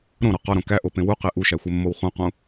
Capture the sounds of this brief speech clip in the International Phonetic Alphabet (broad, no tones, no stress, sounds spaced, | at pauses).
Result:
ɾ õ ɾ ɒ q ɒ ɾ õ k æ ʔ o p ẽ w u q e ʔ u ʃ æ xʷ e mː o w χ ũ q ũ